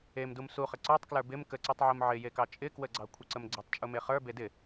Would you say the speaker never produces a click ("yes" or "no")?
no